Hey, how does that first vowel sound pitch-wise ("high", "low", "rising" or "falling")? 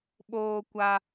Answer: high